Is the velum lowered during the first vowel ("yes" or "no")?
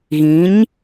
yes